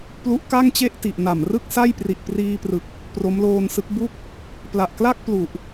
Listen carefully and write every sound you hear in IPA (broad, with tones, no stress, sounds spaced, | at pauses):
p l u˦˥ ʔ k a˥˩ ŋ t͡ɕ e˥˩ ʔ t i˨˩ ʔ n a˨˩ m r ɯ˥˩ k̚ s a˥˩ j p r i˨˩ ʔ p r iː˧ p r ɯ˨˩ k̚ | p r o˦˥ m l oː˧ n s ɯ˦˥ k̚ b u˥˩ k̚ | p l a˨˩ ʔ k l a˥˩ k̚ p l u˨˩ ʔ